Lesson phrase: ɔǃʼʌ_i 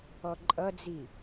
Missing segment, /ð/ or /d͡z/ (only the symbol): d͡z